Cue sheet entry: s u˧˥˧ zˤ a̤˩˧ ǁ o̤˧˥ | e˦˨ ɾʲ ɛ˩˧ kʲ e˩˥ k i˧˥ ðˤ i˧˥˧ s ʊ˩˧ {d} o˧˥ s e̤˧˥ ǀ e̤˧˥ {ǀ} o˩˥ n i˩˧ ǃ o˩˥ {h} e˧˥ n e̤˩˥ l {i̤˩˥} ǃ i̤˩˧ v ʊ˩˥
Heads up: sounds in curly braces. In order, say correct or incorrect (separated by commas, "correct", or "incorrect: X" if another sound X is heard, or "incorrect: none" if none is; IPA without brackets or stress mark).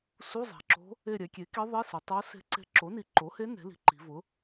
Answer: incorrect: tˤ, incorrect: ǁ, correct, correct